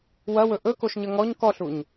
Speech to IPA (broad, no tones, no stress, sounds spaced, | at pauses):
w ɐ w ɵ ʔ ɵ k o ʃ ɲ ə ŋ ɔ ɲ k ɔ ɬ u ɲ